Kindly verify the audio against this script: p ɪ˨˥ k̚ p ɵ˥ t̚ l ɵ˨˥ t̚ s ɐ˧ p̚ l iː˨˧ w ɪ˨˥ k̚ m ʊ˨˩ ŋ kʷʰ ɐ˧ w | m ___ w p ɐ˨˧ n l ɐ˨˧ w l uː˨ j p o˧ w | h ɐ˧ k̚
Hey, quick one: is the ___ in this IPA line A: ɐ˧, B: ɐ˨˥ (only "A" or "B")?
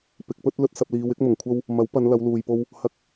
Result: B